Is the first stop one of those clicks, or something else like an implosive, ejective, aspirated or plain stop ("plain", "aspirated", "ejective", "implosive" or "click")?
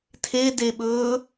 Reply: aspirated